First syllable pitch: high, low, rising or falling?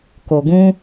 low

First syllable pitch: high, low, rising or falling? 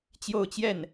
falling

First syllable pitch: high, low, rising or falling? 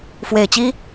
low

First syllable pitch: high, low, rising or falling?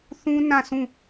high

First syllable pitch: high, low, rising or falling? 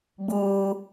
high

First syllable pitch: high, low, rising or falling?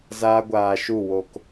high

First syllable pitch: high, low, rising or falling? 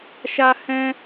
high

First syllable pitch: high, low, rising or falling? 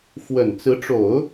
low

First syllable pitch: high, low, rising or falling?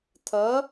rising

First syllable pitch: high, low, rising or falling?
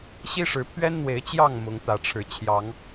high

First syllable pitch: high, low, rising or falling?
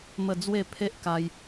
falling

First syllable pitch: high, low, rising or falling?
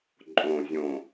low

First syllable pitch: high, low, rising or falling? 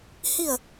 falling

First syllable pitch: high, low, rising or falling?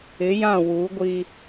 rising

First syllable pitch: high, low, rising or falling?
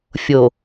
low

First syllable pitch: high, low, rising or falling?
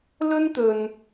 high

